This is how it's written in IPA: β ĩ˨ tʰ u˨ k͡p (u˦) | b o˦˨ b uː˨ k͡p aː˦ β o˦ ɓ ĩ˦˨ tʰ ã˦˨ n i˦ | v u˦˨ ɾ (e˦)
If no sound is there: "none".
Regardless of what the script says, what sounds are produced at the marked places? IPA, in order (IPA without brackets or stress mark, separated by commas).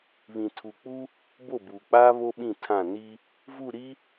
u˦, i˦